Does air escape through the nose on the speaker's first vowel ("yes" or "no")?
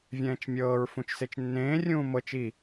yes